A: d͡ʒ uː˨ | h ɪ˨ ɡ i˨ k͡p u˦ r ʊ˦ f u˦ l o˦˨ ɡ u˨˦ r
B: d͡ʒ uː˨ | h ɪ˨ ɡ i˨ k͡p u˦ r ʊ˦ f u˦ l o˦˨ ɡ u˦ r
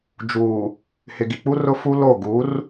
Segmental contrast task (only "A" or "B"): A